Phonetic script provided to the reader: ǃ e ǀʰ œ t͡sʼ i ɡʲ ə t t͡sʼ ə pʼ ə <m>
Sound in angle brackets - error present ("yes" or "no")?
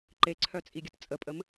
no